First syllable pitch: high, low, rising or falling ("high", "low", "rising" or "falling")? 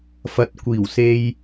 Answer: low